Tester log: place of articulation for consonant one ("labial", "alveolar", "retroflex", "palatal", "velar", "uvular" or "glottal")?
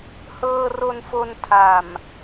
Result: glottal